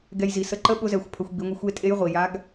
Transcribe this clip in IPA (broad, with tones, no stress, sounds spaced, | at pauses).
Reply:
ɡ ɛ˧ j z i˩˧ s ə˧˥ ǃ ə˥ ɓ ʊ˧˥ z ɛ˩˧ xʷ pʰ ə˩˧ xʷ ɡ͡b i˩˧ ŋʷ ə˧ xʷ e˧˥ tʼ e˧˥ j ʁʷ i˩ j a˧˥ ɡ